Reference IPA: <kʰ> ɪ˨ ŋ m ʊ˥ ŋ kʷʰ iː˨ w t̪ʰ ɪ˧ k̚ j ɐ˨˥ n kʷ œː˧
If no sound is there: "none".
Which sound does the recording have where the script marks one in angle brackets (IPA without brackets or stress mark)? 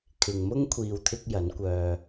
kʰ